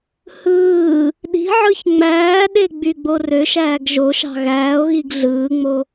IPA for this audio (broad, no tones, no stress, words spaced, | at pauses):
hɯː | ɗi̤ʕɯç ŋ͡mæːɗe ɡ͡byɡ͡borøʃæːɡ ʒoʃɑ̤ ɣæːo̯ɣiɡ ɮɯːŋ͡mo